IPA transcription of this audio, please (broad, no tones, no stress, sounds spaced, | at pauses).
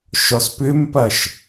ʃ ɔ s p ʏ m p ɐ ʃ